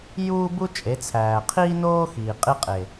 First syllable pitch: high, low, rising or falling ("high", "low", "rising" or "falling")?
high